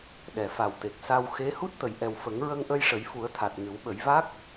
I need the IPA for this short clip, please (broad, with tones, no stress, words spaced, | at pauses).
ɗɛ˨˩˨fa˨˩wt̪e˨˩k̚sa˧w xe˧˥ hu˦˥t̚t̪ə˨˩˨jʔɛ˨˩w fə˨˩˦ŋɹə˧ŋʔə˧j ʂə˨˩˦jfu˨˩˦ə̯t̪ʰa˨˩t̚ ŋɨ˨˩˦wɓə˨˩˦jva˦˥k̚